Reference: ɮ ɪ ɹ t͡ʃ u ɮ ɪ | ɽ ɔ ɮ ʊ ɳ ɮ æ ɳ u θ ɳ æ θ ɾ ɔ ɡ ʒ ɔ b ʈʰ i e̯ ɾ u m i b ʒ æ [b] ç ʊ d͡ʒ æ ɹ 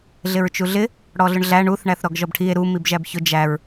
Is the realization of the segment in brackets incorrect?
no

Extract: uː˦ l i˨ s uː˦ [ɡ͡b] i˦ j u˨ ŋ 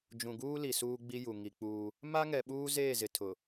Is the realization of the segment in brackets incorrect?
no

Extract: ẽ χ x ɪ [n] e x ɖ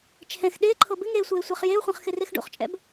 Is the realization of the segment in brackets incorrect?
yes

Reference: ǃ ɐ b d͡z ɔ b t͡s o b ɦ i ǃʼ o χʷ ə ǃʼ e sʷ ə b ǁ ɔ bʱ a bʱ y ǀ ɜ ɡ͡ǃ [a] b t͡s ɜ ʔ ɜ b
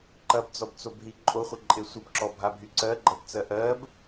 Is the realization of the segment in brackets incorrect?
yes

